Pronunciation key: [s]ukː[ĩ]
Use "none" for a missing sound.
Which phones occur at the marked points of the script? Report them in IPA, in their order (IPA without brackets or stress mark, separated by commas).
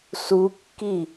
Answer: s, i